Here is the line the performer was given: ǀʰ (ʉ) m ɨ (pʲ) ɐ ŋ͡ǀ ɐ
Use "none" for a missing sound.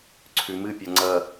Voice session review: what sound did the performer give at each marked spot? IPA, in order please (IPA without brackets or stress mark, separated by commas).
ʉ, pʲ